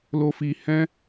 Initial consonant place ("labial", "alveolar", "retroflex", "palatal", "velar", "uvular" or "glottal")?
alveolar